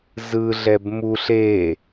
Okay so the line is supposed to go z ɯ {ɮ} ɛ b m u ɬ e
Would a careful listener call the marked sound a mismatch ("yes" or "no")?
no